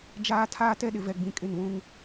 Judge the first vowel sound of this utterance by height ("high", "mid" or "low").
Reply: low